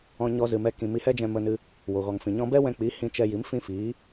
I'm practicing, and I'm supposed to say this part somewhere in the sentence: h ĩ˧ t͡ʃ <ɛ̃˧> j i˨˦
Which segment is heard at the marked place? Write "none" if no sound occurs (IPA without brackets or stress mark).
ɛ˧